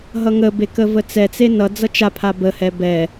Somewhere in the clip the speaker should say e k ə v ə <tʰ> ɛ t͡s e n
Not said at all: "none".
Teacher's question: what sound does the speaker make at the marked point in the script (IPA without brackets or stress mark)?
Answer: t͡s